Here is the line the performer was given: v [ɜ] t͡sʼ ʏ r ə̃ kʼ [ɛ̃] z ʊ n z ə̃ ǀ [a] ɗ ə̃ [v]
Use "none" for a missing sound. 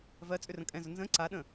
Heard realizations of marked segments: ɜ, ɛ̃, a, none

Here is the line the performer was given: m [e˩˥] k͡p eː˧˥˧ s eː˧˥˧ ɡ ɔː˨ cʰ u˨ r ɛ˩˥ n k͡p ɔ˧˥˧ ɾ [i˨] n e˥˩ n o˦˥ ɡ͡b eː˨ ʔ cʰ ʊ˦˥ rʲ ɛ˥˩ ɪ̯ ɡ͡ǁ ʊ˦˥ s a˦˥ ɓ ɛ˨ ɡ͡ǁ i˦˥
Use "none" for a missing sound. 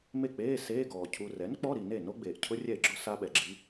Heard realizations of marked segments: e˥˩, i˨

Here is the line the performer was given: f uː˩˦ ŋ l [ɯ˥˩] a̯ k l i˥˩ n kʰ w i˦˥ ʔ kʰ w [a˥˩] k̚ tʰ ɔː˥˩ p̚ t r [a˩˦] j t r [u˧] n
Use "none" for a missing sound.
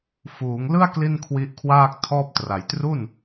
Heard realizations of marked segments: ɯ˥˩, aː˥˩, a˩˦, u˥˩

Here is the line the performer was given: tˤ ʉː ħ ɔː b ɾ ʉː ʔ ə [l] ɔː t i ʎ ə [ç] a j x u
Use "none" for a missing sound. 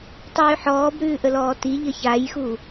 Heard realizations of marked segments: l, ç

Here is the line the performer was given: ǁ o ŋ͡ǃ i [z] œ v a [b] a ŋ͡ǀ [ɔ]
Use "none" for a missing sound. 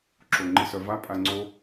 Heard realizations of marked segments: s, pʼ, o

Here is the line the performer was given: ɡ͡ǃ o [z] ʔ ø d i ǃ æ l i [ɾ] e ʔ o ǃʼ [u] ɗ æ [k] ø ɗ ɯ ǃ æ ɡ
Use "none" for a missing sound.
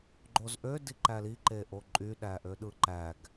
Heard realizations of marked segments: z, ǃ, y, ʔ

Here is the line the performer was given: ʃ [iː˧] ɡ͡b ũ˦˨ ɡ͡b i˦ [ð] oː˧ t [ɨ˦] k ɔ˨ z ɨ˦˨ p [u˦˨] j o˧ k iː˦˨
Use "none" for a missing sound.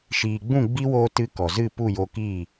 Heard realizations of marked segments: iː˨, w, ɨ˦, u˦˨

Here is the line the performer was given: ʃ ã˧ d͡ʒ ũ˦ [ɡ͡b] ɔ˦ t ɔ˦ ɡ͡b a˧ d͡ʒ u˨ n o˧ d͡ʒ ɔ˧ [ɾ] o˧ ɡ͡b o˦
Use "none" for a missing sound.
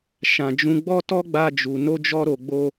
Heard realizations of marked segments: ɡ͡b, ɾ

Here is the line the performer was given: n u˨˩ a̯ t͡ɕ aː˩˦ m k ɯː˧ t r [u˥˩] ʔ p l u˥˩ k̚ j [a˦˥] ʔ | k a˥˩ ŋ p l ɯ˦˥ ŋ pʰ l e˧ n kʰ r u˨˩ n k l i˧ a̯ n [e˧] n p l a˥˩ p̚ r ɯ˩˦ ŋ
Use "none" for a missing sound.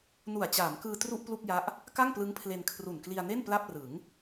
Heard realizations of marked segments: u˥˩, a˦˥, e˥˩

